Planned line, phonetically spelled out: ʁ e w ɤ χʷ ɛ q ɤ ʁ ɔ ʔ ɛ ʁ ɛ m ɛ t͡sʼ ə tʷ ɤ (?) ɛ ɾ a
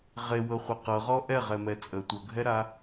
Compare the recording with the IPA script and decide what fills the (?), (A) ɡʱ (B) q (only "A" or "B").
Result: A